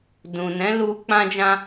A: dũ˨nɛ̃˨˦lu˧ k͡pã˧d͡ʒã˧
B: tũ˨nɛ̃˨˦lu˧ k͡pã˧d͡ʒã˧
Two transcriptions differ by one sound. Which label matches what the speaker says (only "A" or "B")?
A